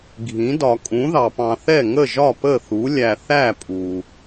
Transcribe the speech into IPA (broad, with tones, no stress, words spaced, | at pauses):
ɡʱĩ˨˥dɒ˧ kʼũ˨˥ðɑ˧pɑ̃˧θɛ˥˨ ŋə˥˨ʒɒ˥˨pə˥˨θu˨˥ lʲæ˧θæ˥˨ pʼu˧